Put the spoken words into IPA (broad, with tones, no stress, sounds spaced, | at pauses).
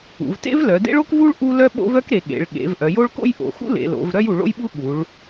ṵ˩˧ v t ḛ˥ v l œ˩˧ d ḛ˥ ɭ o˥ k v u˥ ɭ ʔ u˥ l œ˥ ɓ o̰˥ v œ˥ k ɾ e˩˧ ɠ ḛ˩˧ ɭ ɠ ḛ˩˧ v ʔ œ˩˧ j o˥ ɭ k o̰˥ j ʔ o̰˩˧ x ṵ˥ l ḛ˩˧ l o̰˩˧ v ɾ œ˥ j u˩˧ ɭ o̰˥ j ɓ u˥ ɠ u˩˧ ɭ